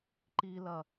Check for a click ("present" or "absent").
present